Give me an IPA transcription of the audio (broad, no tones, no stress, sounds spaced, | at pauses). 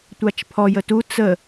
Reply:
tʷ a t͡ʃ pʰ ɔ j ə t u t͡s ə